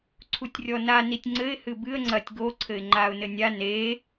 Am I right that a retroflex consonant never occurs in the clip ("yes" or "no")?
yes